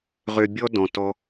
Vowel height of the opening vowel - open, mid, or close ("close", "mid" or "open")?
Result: mid